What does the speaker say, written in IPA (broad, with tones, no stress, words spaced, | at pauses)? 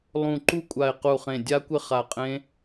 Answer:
lˠũ˧˩ǃu˦˥ kʷʼa˧˩ɪ̯qu˧˩χẽ˧˩ dʲa˦˥kʷɪ˦˥ χa˧˩qʼẽ˦˥